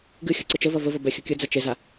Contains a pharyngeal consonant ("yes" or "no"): no